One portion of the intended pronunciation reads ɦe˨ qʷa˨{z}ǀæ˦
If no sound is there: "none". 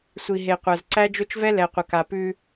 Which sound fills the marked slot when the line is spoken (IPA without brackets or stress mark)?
z